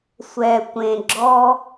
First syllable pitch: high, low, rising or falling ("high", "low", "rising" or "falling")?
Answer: low